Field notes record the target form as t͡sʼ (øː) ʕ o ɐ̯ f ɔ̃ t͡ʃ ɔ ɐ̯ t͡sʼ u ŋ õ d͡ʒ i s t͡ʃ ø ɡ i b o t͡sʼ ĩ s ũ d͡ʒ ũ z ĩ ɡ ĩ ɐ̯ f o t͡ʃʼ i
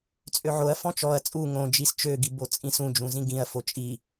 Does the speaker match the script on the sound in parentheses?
no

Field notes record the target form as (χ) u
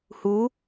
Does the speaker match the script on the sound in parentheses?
no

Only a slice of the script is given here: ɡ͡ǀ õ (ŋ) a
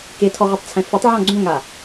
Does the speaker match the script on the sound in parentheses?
yes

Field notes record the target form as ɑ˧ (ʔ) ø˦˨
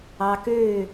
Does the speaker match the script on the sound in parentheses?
no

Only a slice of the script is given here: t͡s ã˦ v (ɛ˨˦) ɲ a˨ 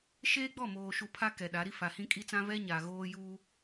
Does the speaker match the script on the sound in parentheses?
no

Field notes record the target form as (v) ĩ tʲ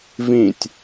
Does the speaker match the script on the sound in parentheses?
yes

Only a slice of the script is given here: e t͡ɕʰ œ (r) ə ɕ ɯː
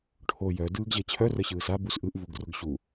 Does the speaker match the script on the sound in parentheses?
yes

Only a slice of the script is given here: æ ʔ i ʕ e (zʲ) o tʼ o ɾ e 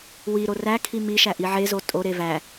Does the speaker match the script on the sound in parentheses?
no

